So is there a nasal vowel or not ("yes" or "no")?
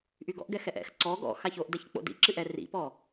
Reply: no